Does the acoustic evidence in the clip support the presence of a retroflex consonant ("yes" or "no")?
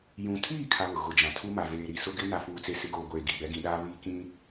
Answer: no